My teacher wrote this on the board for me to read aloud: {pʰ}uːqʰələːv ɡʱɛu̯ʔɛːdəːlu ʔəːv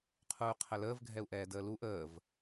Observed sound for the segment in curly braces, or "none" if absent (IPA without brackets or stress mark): qʰ